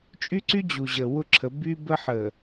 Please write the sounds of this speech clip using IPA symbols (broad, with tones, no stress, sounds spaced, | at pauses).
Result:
t͡ʃʼ y˦ ǀ y˦ d͡ʑ u˨ ʑ ə˨ w ʊ˦ ǁʰ ə˨˦ b y˦ b ə˦ ħ ə˨